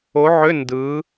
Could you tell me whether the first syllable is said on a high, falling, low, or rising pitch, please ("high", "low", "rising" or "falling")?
rising